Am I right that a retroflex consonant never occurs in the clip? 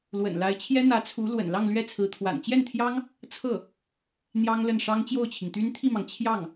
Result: no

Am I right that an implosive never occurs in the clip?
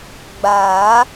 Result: yes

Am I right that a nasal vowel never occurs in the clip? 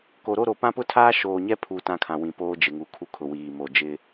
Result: no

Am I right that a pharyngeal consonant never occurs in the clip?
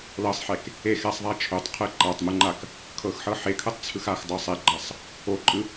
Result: no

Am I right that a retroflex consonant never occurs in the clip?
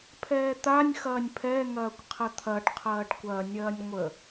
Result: no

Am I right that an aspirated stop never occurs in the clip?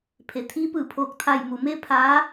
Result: no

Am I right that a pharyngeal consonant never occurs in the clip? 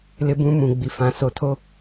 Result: yes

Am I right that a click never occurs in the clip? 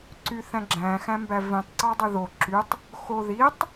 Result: no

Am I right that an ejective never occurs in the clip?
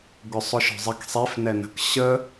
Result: yes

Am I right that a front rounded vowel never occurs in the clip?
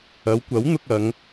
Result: yes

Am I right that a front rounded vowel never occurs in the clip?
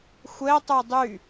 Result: no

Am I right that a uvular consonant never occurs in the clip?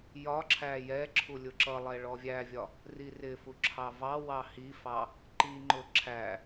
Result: yes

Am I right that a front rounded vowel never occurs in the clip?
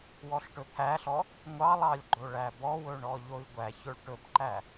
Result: yes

